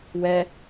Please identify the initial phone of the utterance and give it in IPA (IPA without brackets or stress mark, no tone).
w